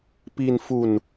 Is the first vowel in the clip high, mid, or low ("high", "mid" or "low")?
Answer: high